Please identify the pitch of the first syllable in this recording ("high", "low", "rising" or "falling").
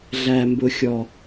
low